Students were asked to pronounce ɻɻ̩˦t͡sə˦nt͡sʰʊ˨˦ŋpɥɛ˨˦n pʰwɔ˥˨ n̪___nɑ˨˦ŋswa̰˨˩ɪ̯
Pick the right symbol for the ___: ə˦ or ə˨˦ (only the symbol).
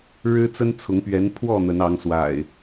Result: ə˨˦